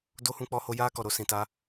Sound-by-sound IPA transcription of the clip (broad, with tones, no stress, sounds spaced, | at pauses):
d o˦ h ũ˧ k͡p ɔ˧ h o˧ j aː˦ k ɔ˨ ɾ o˧ s ĩ˨ t a˧